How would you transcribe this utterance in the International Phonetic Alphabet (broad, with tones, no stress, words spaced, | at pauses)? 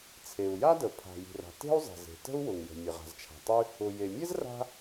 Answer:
t͡sʰe˩u̯ ja˥də˩ pʰa̤˩ji̤˩ra̤˩ te̤˥u̯zˤɛ̤˩ze̤˩ tə̤˥u̯wʊ˩ŋjə̤˩ mʲə˩ʁa̤˩zt͡ʃʰa̤˩tˤy˥ | ʊ˩ je˩mʲɛ˥z ra̤˥